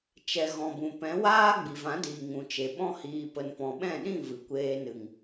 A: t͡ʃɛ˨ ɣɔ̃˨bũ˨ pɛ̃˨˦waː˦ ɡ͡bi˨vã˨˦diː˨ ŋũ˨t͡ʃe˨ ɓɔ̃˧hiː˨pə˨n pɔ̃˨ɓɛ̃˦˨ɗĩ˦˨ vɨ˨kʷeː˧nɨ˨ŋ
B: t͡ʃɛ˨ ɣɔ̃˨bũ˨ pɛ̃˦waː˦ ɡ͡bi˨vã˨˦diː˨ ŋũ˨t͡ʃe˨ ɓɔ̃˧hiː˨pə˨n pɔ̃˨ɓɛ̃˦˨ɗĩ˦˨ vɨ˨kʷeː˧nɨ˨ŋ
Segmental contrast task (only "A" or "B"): A